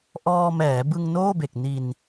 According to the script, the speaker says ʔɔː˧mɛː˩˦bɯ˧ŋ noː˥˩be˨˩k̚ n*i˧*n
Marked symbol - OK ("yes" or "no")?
yes